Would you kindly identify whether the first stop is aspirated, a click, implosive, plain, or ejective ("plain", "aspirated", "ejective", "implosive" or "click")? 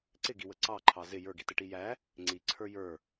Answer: click